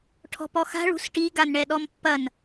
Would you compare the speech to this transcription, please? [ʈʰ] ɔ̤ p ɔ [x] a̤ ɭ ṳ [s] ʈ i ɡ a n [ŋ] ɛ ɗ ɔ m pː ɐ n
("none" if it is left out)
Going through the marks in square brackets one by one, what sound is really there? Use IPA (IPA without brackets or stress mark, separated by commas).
ʈʰ, x, s, ɳ